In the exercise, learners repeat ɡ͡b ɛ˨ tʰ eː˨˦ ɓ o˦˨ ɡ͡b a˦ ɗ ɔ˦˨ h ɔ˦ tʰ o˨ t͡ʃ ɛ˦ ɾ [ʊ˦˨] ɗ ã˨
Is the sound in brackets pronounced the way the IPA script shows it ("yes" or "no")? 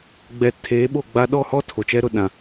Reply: yes